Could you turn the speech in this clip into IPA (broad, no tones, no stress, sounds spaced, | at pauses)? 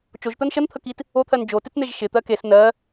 t͡ʃ o ʒ t̪ ɜ n ʃ ə n t̪ʰ ə k i t | o t̪ʰ ɜ n d͡ʒ o t ɪ t͡s n̪ e ʒ ʃ ɪ t̪ ɜ k e s n ɜ